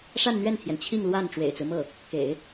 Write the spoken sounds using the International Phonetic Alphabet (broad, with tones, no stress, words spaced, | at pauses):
ʂa˥˧nn̪ɥɛ˥˩nt̪ʰjɛ˩n t͡ɕʰi˥˧ŋ lwa˥˩n ʈ͡ʂwḛ˨˩ɪ̯t͡sɹ̩˦mɤ˥˩ | kḛ˨˩˦ɪ̯